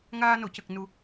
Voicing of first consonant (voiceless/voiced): voiced